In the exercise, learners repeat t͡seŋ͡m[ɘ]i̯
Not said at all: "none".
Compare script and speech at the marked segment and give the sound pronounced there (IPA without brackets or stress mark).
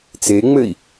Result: ɘ